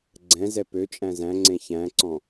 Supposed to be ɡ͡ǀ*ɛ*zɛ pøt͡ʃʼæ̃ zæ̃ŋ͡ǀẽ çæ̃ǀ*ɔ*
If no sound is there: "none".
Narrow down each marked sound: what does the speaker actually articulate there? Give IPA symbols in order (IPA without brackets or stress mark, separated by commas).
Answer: ɛ̃, ɔ̃